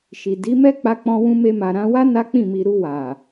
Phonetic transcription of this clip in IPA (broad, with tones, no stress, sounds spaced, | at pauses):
ʃ i˨ d i˨˦ m ɛ˦ k͡p a˦ k͡p ɔ̃˦ w ũ˦ m e˧ m a˨ ɾ ã˧ w a˦ n a˦ k͡p ĩ˦˨ m i˧ ɾ u˧ w a˨